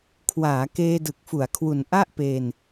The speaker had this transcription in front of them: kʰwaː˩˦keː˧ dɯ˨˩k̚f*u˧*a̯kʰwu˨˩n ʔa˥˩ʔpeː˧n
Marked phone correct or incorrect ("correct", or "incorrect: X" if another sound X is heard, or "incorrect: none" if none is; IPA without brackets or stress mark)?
incorrect: u˩˦